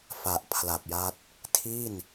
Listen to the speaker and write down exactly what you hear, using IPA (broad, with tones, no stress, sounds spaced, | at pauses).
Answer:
f a˨˩ ʔ pʰ l a˨˩ p̚ j a˦˥ t̚ | tʰ i˥˩ n